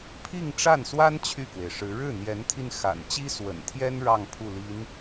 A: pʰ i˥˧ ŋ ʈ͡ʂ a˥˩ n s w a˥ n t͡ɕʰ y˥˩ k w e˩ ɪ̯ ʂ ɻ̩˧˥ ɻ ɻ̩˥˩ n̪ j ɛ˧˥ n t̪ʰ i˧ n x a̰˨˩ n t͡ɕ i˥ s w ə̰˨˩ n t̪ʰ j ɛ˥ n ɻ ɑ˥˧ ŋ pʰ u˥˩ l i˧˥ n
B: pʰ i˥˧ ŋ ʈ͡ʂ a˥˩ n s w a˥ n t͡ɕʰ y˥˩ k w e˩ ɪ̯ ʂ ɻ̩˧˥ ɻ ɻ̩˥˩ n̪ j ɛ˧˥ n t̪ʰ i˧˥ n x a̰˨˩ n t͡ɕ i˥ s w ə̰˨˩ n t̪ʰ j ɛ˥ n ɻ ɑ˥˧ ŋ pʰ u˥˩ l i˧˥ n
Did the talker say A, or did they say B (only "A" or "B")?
A